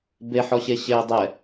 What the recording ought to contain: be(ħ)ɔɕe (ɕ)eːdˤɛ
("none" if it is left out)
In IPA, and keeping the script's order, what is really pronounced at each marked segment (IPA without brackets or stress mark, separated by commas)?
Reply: ħ, ɕ